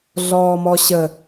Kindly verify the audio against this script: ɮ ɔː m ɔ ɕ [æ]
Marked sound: incorrect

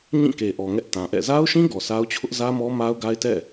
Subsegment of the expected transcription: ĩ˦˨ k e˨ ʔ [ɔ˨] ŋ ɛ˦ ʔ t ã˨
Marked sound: correct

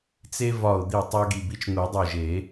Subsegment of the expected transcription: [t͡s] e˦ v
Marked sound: correct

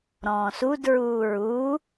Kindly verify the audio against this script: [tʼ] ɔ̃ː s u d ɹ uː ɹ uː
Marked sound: incorrect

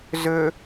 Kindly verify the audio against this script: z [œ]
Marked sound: incorrect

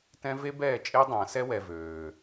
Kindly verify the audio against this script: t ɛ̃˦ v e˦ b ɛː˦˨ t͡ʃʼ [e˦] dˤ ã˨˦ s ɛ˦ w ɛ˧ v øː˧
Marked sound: correct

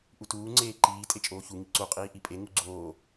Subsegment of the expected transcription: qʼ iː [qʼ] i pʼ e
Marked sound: incorrect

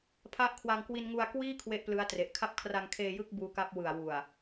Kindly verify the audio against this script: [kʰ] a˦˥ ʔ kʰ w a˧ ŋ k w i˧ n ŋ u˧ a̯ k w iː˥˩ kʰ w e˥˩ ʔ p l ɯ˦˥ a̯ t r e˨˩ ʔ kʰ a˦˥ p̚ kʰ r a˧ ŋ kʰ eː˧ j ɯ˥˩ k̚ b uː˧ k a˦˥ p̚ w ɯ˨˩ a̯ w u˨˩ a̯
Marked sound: incorrect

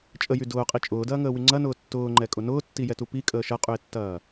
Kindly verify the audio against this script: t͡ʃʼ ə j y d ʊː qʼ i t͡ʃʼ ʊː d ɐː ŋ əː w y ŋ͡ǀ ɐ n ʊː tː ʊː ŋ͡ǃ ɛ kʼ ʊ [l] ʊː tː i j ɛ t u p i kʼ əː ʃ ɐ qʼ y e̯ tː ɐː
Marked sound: incorrect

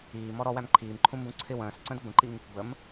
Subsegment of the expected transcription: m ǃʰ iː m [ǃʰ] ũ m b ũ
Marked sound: correct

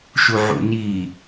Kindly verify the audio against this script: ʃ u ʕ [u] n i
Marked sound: incorrect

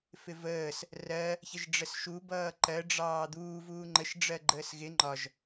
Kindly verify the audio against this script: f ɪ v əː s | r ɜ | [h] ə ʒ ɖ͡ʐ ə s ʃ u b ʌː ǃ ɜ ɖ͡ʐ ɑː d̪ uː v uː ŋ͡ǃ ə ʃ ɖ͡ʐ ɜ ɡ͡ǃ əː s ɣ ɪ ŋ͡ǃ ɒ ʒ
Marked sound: incorrect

